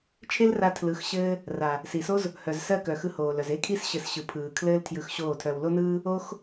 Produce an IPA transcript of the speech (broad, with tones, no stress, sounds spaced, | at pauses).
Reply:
t͡ʃʰ e˦ l r a˧ tʰ l ɯ˨˦ x ɕ ɘː˦ | r a˨ | s i˨ s o˦ z | h œ˨ z s ɜ˦˨ k œ˨ x ɯ˧ h oː˨ l œ˨ z e˦ kʰ i˦ s ɕ ɘ˨ s ɕ ɯ˨ pʰ ɯː˨ kʰ l ɘː˦ l tʰ j ɯ˧ x ɕ oː˦˨ tʰ œ˧ w l o˦ n ɯː˦ | o˦ x